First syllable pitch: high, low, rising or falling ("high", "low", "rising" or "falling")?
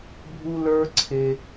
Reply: high